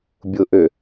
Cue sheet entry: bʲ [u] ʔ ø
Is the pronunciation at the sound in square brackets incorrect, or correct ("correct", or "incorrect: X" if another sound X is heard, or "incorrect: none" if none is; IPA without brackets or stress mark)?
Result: incorrect: ʊ